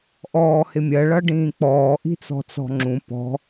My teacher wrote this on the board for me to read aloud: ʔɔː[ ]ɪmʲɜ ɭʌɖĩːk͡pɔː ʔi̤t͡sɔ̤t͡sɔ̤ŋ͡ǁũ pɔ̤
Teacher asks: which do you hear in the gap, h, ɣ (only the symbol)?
h